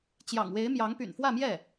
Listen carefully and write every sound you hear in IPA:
t͡ɕ j ɑ̰˨˩ ŋ w e˧˥ ɪ̯ m j ɑ˧˥ ŋ p y̰˨˩ n f w ä˥˧ m j ɛ˥˩

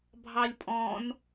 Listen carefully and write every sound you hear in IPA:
bʱ ɑ lʲ pʼ ɔ̃ n

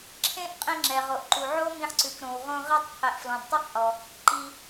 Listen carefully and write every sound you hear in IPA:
ǁʰ ẽ˥ ʔ qʼ ĩ˧ ŋ͡ǁ ɛ˩ ʁ o˩ ʔ ǃ u˩ ʕ o˥ m ĩ˧ ħ ǀ ʉ˩ k ɾ õ˩ w ʁ õ˧ ʁ ɛ˧ tˤ qʰ e˩ ʔ f l ɔ̃˩ d tˤ i˧ q ʔ ɔ˩ | ǃ i˩

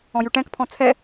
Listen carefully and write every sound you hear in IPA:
ɔ̃ j ʉ ʈ ɛ̃ k pʰ ɔ̃ t͡sʰ ɛ

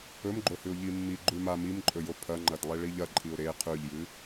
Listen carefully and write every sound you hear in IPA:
ɵ m ɡ͡ǃ o h ʉ ʊ̯ ʎ i mː i ɡ͡ǃ ʉ m a m i m ǃʼ ɵ j o pʰ ɐ ŋ͡ǃ ɐ d lˠ e ɭ i ʎ ɐ ǃʼ i ʊ̯ ɾ e qʰ ʉ ʎ j ɨ

